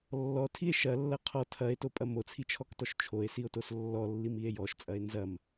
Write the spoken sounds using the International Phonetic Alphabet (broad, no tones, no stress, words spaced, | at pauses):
lːɔtʰie̯ ʃɐlːɐ qʰɔ tʰɐe̯topʼɐ mot͡sʰit͡ʃʰɔktɔʃ t͡ʃʰoe̯sio̯tos lːɔlːimie̯ jɔʃt͡sʼɐe̯ nzɐm